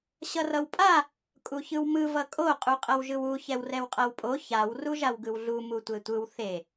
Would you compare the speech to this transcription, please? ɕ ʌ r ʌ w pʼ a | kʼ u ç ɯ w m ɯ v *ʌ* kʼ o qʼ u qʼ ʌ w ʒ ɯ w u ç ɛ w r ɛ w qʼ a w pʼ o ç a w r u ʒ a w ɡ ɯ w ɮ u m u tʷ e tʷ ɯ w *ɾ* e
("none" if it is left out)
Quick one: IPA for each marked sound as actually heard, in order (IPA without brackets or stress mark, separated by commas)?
ʌ, θ